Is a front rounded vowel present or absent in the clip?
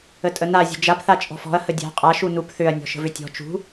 present